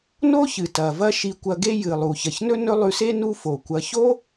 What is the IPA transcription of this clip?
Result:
n o˥ ç ɨ˩ t ɐ˩ v ɐ˦ ʃ i˨ kʷ ɐ˨ ɡ e˦ j ɨ˩ lˠ u˩ ç ɐ˩ ç n ɵ˥ n ɵ˦ lˠ ʉ˨ s e˥ n u˦ f o˩ kʷ ɐ˨ ç o˥

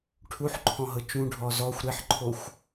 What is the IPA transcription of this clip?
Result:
ʈʰ u ħ ǃʰ ɔ̃ ɦ ɤ t͡ʃ ũ ɖʱ ɔ z ɔ xʷ ɾ e ħ ǃʰ o xʷ

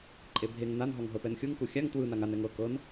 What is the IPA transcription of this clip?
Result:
ǃʼ e bʱ e ŋ n a n ɦ ɔ ŋ ɦ ɤ p ɛ n xʲ u ŋ k u xʲ a ŋ t w ɯ n a ŋ a n ɛ ŋ ɤ k ɤ n

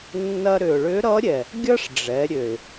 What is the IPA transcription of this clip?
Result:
nː ɐ˧ ɾ ʏ˩ ʊ̯ ɭ ʏ˧˥ ɾ ʌ˧˥ ɾʲ ɛ˩ | ɡʲ ʌ˥ ʂ ɖ͡ʐ ɛ˩˧ ɾʲ ø˩ ɪ̯

